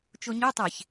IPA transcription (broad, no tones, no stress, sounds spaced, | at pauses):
t͡ʃ o ɲ ø tˤ e ç